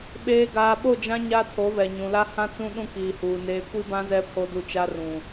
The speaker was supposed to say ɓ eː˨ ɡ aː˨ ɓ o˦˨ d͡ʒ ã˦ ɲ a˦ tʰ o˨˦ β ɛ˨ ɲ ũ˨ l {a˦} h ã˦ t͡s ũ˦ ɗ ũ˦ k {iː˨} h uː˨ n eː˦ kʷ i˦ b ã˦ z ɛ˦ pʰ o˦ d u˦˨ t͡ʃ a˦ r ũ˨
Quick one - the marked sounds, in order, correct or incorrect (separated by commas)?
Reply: correct, correct